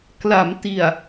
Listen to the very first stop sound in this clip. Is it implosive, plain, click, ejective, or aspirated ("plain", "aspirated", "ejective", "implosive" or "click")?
plain